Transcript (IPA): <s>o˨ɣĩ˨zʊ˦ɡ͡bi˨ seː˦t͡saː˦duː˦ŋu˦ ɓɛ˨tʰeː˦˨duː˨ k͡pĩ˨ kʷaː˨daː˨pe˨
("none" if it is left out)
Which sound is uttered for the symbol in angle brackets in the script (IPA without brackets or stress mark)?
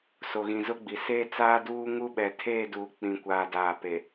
s